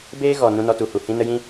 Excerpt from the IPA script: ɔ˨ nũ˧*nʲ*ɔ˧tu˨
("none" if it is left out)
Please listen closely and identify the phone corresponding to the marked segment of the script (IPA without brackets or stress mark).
n